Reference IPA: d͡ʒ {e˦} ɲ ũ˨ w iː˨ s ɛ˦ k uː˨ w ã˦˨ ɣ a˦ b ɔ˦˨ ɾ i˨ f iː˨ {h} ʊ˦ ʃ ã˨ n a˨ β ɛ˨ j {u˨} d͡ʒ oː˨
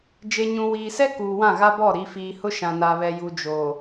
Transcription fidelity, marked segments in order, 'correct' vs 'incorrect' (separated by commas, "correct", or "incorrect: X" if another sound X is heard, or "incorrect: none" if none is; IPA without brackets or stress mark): incorrect: e˨, correct, correct